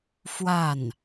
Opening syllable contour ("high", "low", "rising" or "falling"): falling